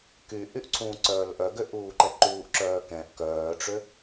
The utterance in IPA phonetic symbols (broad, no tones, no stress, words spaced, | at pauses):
kyʔyʔ ǀʰũːǀœːlʔœɡø ʔuːǃɛǃuːʔǁœː kɛ̃ʔ kœːʈ͡ʂø